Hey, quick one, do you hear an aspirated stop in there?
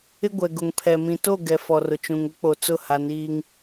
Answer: yes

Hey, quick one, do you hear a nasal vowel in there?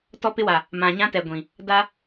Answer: yes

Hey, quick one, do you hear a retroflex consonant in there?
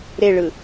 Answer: yes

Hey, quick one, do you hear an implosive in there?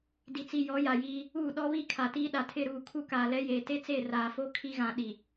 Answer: yes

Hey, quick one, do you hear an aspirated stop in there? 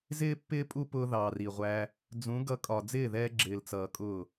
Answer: no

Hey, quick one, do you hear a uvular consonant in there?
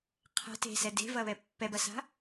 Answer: yes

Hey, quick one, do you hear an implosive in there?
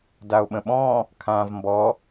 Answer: yes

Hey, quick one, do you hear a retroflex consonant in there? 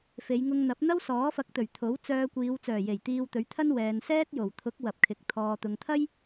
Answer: no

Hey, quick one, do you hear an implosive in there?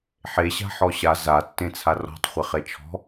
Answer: no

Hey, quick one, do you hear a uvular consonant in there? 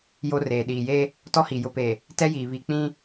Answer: no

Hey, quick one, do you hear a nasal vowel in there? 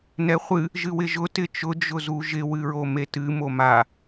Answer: no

